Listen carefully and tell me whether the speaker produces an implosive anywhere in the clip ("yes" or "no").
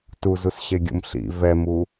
no